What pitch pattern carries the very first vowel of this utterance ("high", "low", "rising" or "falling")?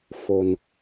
low